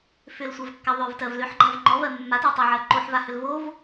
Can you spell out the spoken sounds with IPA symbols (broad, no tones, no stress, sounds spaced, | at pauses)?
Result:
f ʏ l sʷ ɜ v kː a ðˤ ʏ v t ɜ v l ʏ ħ ɡ͡ǃ a v ŋ͡ǃ ɔ v ɜ mː a t ɔ tˤ a ʕ ɜ ǃ o ħ v a h ʏ l v o v